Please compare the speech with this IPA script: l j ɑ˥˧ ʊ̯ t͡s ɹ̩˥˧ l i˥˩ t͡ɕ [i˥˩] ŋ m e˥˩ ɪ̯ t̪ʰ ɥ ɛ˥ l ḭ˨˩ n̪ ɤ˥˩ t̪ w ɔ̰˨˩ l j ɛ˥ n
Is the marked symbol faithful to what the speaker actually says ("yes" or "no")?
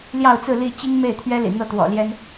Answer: no